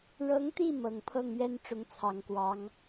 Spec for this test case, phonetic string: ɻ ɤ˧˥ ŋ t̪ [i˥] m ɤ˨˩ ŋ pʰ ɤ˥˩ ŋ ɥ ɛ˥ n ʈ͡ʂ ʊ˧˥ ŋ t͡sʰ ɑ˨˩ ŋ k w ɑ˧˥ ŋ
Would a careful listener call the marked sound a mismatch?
yes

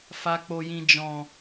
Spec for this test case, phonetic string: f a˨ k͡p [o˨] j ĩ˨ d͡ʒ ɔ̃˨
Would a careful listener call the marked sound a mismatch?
no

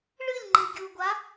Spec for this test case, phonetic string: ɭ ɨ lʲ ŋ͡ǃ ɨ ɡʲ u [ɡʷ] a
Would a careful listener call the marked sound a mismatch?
no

